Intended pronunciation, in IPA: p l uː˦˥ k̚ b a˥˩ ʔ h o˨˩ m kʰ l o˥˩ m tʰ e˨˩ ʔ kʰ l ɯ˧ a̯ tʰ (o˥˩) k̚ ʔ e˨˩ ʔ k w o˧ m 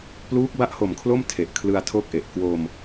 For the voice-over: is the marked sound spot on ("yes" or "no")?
yes